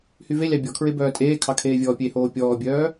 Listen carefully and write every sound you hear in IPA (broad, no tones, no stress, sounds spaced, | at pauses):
h y v e lʲ ɑ bʲ ɔ kʰ ɹ e b œː tʼ eː kʰ ɑ kʰ eː vʲ ɔː pʲ e h oː pʲ ɔː bʲ œː